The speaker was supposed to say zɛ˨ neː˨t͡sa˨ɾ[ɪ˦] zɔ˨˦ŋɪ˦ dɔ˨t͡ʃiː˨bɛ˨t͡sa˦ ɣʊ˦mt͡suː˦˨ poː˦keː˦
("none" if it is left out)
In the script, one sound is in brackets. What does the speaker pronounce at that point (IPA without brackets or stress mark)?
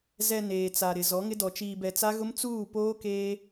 ɪ˨